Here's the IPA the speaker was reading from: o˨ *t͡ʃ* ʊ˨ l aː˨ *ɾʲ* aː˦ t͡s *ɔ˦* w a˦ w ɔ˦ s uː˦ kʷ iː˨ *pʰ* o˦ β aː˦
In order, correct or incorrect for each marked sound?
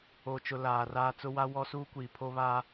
correct, incorrect, incorrect, correct

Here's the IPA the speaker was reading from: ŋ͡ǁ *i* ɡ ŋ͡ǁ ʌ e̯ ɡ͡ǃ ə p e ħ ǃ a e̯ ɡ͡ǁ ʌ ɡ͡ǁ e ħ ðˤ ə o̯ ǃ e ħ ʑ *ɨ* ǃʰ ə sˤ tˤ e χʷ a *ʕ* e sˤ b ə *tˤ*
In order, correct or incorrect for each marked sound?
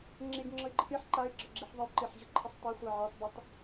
incorrect, incorrect, correct, correct

